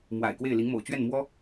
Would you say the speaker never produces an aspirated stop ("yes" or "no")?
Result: yes